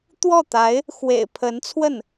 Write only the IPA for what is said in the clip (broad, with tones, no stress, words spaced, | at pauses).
t̪wɔ˥˩t̪a˧˥ɪ̯ | xwḛ˨˩ɪ̯ pʰə˧˥nt͡sʰwə˥˩n